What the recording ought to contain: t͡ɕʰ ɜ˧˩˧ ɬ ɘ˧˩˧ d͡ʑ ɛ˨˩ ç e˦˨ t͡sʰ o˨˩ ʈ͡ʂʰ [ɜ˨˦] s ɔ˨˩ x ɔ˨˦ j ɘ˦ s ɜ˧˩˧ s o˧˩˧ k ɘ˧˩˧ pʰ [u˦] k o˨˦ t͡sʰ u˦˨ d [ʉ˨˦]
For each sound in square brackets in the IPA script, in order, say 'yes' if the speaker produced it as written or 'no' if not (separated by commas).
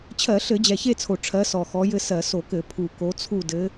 yes, no, no